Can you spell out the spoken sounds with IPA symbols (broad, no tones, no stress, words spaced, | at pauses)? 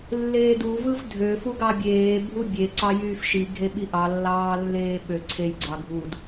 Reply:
lːeːduvɯv dʱø fuɡɑbʲeː bʱubʲe ǀɑjyːfʃi ɡʱeɓiʔɑ lːɑːlːeːɓø ǀʰejɡ͡ǀɑ ɡʱud